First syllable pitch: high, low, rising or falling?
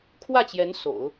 falling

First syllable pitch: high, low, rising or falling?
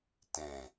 low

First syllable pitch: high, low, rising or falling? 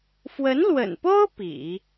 rising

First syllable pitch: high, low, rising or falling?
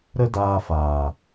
high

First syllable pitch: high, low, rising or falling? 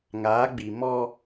rising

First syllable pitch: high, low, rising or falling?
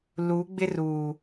rising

